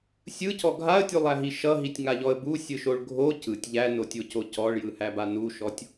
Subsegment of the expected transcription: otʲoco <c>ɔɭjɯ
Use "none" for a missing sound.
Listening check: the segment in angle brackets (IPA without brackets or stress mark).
c